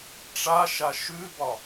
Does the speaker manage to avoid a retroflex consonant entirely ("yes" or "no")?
no